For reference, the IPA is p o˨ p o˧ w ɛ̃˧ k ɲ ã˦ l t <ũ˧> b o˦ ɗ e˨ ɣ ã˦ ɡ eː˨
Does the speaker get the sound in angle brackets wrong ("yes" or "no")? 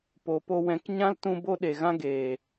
no